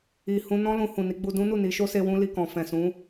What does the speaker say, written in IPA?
i˨ h ũ˧ n ɔ̃˦ l ũ˧ h ũ˨ n i˨˦ ɡ͡b u˧ d ũ˦ n u˦˨ n i˨˦ ʃ o˧ s e˧ w ũ˧ l i˨ k ɔ̃˨ f ɛ̃˨ s ũ˨˦

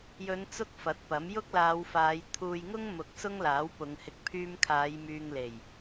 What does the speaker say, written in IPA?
j ɵ˨˧ n t͡s ʊ˥ k̚ f ɐ˨˥ t̚ p ɐ˨˥ m j ʊ˥ k̚ l aː˨˧ w f aː˨˧ j t̪ʰ uː˧ j ŋ ʊ˥ ŋ m ʊ˨˥ k̚ s ʊ˥ ŋ l aː˨˥ w p ʊ˨˧ ŋ h ɪ˧ k̚ pʰ yː˧ m kʰ aː˨˧ j m yː˧ ŋ l e˨˩ j

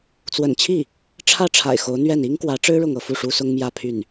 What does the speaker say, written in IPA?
t͡s w ə̰˨˩ n t͡ɕʰ i˥˩ | ʈ͡ʂʰ ä˥˩ ʈ͡ʂʰ a̰˨˩ ɪ̯ x o˧˥ ʊ̯ n̪ ɥ ɛ˥˩ n i˥ ŋ k w ä˧˥ ʈ͡ʂ ɻ̩˥ ɻ ʊ˥˧ ŋ ɤ˥˧ f u˥˩ ʂ u˥ s ʊ˥ ŋ m j ä˥˧ pʰ y˥˩ n

